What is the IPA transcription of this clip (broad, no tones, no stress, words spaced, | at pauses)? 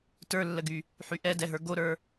tə˞lːəɡy | ħyʔɛdɛɦə˞ ɡoɾə˞